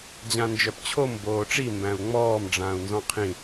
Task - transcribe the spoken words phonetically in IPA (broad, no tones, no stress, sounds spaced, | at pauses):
d͡ʑ ã n d͡ʒ œ p t͡ɕʰ o m b oː ʈ͡ʂ i m b æ̃ u̯ ŋ͡m ɔː m ɖ͡ʐ ãː u̯ n z ɔ̃ qʰ ĩ